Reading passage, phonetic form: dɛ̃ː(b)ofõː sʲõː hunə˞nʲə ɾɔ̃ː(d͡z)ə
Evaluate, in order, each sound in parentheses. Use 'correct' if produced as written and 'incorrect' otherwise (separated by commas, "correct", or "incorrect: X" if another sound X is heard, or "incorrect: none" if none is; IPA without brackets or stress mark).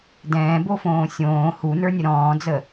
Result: correct, correct